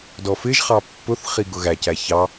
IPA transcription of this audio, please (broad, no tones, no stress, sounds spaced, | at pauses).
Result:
d ɔ f ɪ ʒ χ ɑ pː ʊ θ χ i ɡ ʊ ɣ æ c æ ç ɑ